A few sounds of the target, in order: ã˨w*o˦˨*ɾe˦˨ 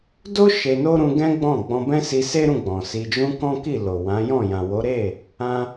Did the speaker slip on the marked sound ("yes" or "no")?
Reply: yes